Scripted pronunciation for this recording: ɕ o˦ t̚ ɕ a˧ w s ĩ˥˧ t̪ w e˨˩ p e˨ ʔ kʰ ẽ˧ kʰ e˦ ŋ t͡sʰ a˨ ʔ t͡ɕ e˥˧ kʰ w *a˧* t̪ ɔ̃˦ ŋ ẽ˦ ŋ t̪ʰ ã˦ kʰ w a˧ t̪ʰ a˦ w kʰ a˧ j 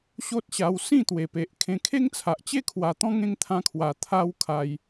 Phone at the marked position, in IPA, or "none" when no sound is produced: a˧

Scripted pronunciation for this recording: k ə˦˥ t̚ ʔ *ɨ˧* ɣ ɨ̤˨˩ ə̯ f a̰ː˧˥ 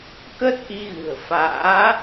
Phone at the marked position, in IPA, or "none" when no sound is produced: i˧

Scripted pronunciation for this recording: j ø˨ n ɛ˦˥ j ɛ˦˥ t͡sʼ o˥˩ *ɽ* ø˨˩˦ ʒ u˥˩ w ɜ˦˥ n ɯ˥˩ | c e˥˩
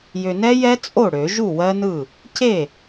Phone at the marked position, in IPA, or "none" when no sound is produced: ɽ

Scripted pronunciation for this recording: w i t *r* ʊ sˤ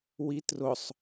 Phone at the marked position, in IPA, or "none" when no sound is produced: r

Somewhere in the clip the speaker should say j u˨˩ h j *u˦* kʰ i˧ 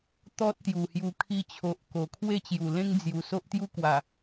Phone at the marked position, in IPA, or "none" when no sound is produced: u˧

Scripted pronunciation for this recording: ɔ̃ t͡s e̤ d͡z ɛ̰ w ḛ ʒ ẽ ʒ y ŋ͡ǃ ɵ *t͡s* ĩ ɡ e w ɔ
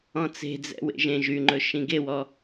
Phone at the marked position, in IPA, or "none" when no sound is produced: ʃ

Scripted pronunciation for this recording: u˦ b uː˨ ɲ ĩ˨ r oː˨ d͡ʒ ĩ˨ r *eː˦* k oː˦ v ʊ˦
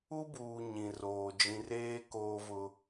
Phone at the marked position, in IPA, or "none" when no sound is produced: eː˦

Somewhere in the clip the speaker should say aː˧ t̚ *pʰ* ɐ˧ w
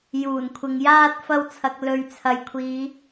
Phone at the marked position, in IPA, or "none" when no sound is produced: f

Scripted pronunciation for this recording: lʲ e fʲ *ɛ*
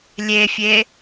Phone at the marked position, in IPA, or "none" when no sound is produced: e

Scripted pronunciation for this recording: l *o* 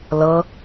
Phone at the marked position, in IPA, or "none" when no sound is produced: ɤ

